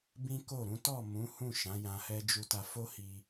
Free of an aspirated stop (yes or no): yes